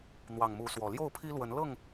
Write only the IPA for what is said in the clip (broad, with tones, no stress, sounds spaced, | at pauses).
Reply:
n̪ w ɑ˨˩ ŋ m u˨˦ s w ɔ˨˩ l j o˥˨ ʊ̯ pʰ i˦ l w ə˨˦ n l ɤ˥˨ ŋ